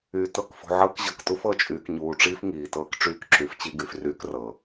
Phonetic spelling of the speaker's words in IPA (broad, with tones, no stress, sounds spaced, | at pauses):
yː˨ t ɤ˦˨ k f ṳ˨ ʕ ɤː˦ k ʑ ɤ˨ k t u˦ f ɤ˦˨ t͡ʃʼ yː˨ k ɲ uː˨ ʈ͡ʂ iː˦ f ŋ iː˨ t ɤː˦ k ʈ͡ʂ yː˦ k ǁ y˨˦ f t͡ɕ i˦ ɡ y˨ f r yː˦ k r ɤː˨